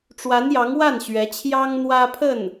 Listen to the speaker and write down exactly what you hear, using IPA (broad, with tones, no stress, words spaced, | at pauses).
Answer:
ʈ͡ʂwa˧˥njɑ˧˥ŋwa˥˩nɕɥɛ˧˥ t͡ɕʰjɑ˥ŋn̪wä˥pʰə˥˩n